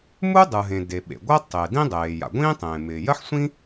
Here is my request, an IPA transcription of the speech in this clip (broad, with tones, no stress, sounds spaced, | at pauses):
m u˥ dˤ ɯ˩ ɦ ẽ˩ d e˩ ɓ ḛ˩ ɡʷ ɜ˥ tˤ ɪː˩ d ĩ˥ dˤ eː˩ j a̰˩ ɡʷ ĩː˥ tˤ ẽː˩ m ɪː˩ j ɜ˥ ħ sʷ ĩ˥